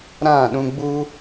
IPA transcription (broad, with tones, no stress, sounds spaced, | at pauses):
ɾ ã˦˨ ɗ ũ˦ ɡ͡b u˦